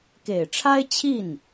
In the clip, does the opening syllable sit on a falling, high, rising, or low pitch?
low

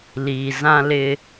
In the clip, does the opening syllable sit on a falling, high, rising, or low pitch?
low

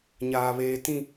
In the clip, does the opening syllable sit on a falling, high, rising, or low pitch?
high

